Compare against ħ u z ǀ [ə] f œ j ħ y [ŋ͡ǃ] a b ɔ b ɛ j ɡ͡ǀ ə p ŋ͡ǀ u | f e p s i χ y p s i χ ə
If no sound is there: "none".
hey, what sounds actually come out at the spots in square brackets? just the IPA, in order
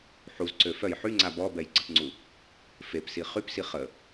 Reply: ø, ŋ͡ǀ

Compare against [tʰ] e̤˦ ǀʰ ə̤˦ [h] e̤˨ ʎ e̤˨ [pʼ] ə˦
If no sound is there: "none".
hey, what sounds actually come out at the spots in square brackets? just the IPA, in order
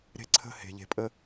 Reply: ɾ, h, pʼ

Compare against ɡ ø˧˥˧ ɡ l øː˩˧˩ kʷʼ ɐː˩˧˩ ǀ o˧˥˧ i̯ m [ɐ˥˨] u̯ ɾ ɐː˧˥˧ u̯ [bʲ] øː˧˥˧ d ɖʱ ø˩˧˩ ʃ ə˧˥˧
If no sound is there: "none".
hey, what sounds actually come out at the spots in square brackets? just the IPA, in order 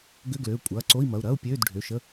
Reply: ɐ˩˧˩, pʲ

